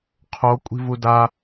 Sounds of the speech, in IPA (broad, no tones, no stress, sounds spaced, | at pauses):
qʰ o kʷʼ i̤ v u d a